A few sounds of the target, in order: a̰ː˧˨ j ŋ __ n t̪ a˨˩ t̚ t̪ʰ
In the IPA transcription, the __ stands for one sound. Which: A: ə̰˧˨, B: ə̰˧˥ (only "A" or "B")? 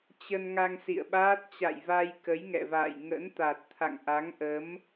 B